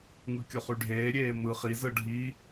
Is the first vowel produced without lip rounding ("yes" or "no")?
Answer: yes